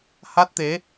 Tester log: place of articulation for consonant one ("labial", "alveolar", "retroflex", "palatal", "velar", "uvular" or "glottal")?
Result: glottal